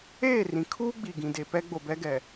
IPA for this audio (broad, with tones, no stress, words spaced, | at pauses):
eː˦˨rĩ˨ kʰuː˦ɡ͡bi˨ ɡĩ˨de˨ pɛ˦ɡ͡bo˨ bɛ˦ɡɛ˨